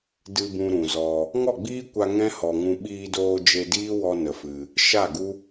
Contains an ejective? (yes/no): no